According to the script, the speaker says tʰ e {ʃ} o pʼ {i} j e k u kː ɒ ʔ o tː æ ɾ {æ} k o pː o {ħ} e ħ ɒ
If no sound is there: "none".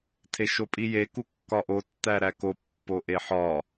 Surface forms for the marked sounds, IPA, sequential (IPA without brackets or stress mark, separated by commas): ʃ, i, æ, ʔ